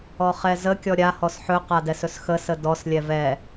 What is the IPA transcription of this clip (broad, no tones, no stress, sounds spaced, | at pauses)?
ɔ χ ɛ z ə kʲ ɔ ɾʲ a h ɔ s ħ ɵ q a d ɛ s ɵ s x ə s ə d ɔ s lʲ ɛ v ɛ